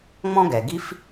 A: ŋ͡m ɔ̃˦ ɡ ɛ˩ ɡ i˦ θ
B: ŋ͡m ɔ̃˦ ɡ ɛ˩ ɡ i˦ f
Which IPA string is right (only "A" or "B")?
B